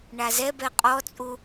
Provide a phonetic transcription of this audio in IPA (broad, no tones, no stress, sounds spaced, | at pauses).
ɳ a z ɛ b ɛ qʼ ɔ t͡sʼ u